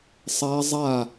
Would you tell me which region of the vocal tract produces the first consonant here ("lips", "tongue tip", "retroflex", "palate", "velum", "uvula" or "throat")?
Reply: tongue tip